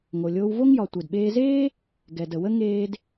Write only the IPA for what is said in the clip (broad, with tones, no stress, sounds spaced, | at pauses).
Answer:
ŋ o˩ lʲ oː˧ w v o˥ ŋ j ɒ˩ tʷ e˩ d ɓ eː˧ z eː˥ | ɡ ɛ˩ d ə˩ w ə˥ ŋ eː˧ d